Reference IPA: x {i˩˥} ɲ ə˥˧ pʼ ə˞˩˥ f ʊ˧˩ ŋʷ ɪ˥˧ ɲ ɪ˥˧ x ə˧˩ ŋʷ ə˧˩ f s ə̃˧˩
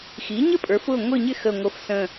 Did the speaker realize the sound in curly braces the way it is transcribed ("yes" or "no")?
yes